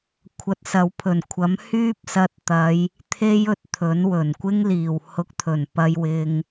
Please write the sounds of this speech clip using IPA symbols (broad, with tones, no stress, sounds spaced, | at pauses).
kʷʰ ɐ˧ t̚ s ɐ˨˧ w pʰ ɵ˨˩ n kʷʰ ɐ˨˥ m h yː˥ p̚ s ɐ˧ t̚ t̪ ɐ˨˧ j | t̪ʰ e˥ j ɵ˧ t̚ t̪ʰ ɵ˨˥ n w ɵ˨˩ n kʷ ɪ˥ ŋ l iː˨˩ w h ʊ˧ k̚ t̪ʰ ɵ˨˩ n p ɐ˧ j w ɪ˧ ŋ